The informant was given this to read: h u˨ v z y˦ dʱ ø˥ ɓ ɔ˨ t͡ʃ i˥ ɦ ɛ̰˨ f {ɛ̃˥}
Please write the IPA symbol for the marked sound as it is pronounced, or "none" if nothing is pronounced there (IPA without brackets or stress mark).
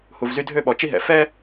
ɛ˥